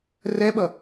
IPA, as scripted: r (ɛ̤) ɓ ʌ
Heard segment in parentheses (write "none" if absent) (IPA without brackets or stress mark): ɛ